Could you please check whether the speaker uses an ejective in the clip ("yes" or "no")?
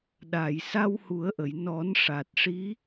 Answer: no